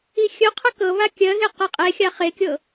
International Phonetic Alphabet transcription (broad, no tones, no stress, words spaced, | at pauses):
ixʲɵqʰə kɤ βakʲɜɣe qeqʼexʲa χekʲɤ